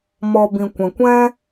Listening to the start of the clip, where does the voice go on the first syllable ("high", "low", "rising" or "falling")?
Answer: low